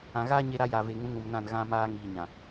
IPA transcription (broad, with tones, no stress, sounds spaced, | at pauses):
ã˨ ɣ aː˦ ɲ e˦ ɾ a˦ j a˨ v e˨ ŋ ũ˨˦ ŋ ũ˨ m n ã˦˨ n ɣ ã˦ m aː˦ ŋ iː˨ ɲ ã˨